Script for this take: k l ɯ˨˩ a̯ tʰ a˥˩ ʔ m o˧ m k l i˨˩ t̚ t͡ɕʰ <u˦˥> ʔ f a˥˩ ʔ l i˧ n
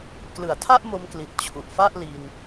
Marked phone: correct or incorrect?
incorrect